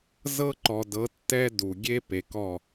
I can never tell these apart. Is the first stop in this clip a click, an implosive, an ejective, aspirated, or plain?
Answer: click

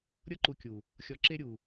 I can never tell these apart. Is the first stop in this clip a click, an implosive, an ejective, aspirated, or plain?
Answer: click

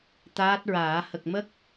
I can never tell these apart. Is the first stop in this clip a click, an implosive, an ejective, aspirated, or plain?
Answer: plain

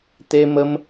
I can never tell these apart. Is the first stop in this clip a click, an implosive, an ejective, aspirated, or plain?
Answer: plain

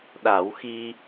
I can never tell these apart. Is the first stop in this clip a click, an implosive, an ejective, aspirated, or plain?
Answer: implosive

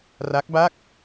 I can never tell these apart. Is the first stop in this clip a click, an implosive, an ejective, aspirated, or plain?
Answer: plain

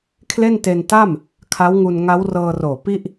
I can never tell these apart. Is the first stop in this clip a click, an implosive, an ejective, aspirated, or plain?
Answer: aspirated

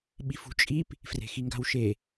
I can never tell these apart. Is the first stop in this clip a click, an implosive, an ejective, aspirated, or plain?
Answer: implosive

